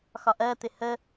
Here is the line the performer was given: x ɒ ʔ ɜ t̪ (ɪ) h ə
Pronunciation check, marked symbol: correct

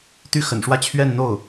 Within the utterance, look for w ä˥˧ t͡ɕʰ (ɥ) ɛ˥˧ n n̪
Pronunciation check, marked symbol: correct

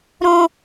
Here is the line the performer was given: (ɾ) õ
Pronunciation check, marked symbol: correct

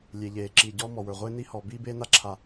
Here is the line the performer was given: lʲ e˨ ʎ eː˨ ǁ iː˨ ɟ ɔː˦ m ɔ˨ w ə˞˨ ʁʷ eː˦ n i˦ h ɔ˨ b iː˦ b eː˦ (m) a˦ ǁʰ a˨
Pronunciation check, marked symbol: incorrect: n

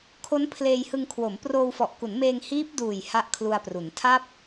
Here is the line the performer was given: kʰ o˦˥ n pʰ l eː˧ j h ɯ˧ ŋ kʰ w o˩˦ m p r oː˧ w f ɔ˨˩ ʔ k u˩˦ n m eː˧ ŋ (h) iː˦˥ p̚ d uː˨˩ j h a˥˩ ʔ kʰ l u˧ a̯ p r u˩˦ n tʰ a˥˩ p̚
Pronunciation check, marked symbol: correct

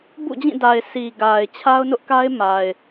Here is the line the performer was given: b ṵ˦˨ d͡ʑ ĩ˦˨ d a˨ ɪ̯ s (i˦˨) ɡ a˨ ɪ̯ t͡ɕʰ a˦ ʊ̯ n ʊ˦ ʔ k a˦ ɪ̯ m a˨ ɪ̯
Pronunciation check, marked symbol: incorrect: i˨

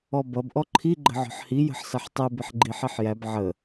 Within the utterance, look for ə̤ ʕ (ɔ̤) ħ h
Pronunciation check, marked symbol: correct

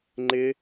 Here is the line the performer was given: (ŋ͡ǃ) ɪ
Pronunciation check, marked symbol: correct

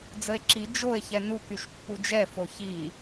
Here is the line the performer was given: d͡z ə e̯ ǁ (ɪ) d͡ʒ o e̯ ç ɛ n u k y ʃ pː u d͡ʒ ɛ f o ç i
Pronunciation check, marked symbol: incorrect: i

